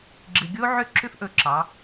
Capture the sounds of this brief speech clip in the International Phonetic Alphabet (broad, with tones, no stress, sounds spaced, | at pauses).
ɡ͡ǁ ɨ˨ ɡʲ o˦ ʕ ʏ˦˨ ǁʰ ʏ˦ f ʔ ɵ˧ ǁ ɑ˨˦